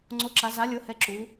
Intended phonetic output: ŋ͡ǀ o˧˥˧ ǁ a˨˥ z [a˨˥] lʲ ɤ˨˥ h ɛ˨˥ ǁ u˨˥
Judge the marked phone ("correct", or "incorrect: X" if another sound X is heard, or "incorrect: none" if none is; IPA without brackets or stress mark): correct